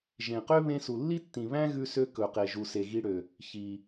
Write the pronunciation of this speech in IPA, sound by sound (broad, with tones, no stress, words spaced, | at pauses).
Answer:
ʒẽ˩qø˥ βẽ˧su˩lːi˥tːĩ˩ βæ̃˥ɣʉ˧sø˧ kɵ˩qe˩ʒu˩se˩ ɣi˧ɽø˩ | çi˩